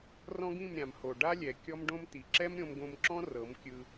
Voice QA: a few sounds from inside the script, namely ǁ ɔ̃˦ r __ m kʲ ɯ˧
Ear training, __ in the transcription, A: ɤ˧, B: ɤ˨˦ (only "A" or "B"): B